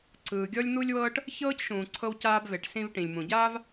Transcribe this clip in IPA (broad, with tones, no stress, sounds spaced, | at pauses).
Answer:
ǀ ɯː˩ ɡʲ ɔ˥ lʲ n̪ u˥ lʲ w ɤː˥ ʈ | ç ɤː˥ c ʃ ũː˩ ǀʰ ɤ˧ w c aː˧ b v e˩ ʈ s ĩ˧ v ʈ ĩ˩ lʲ m ũ˩ ɟ aː˥ v